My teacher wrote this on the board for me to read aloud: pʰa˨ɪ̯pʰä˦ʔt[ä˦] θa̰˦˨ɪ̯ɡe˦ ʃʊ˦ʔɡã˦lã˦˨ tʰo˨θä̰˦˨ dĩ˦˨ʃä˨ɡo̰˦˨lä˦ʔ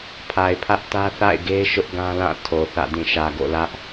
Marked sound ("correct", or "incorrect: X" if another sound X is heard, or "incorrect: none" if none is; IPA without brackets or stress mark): correct